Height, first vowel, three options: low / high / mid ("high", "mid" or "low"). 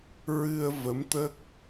high